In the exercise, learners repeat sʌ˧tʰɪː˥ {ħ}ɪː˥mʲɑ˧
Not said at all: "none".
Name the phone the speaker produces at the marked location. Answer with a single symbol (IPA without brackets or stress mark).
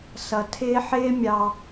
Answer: ħ